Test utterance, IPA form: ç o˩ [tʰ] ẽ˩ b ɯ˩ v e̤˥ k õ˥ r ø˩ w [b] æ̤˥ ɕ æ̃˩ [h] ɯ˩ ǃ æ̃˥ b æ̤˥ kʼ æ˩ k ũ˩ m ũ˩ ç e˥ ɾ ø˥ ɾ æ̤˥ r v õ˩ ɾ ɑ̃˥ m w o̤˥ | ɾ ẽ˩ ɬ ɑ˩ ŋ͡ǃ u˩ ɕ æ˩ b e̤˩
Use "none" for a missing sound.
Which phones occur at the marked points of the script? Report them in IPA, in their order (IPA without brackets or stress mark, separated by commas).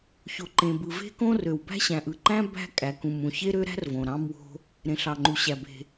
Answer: ǃ, b, ʔ